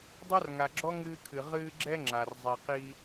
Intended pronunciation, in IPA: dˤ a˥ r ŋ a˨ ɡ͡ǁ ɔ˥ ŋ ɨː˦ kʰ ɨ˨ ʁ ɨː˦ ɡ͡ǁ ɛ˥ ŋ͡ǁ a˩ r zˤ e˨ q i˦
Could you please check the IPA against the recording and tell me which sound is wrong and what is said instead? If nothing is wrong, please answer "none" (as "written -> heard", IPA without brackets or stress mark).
none